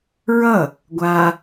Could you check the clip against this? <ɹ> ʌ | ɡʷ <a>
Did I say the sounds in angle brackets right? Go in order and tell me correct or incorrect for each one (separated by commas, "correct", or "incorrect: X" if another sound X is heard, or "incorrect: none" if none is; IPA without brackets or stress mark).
correct, correct